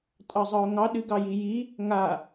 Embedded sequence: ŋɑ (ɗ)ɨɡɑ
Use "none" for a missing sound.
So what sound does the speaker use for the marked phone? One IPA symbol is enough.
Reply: ɗ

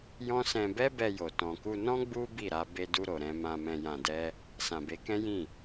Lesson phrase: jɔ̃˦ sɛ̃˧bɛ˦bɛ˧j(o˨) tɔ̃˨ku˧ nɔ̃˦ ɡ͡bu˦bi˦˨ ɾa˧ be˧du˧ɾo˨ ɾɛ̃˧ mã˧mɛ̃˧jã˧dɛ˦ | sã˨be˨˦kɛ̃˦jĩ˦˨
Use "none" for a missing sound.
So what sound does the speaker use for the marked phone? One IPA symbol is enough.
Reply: o˨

